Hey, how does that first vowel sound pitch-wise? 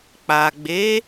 low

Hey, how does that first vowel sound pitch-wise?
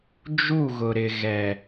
falling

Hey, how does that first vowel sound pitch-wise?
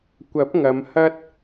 rising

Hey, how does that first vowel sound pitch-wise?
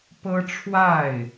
high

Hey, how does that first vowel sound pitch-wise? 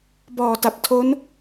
low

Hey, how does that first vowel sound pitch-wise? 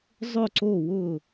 falling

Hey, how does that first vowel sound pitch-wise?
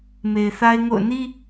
low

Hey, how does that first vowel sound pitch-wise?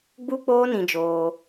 high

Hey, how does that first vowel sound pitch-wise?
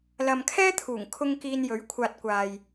low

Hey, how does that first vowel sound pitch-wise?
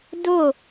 falling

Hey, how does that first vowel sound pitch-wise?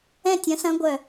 falling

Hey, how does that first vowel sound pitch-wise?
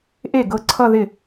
falling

